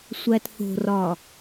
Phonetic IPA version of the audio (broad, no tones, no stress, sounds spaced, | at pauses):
sʷ æ t θ o̤ r ɒ